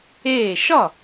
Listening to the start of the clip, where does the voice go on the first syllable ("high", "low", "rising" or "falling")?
falling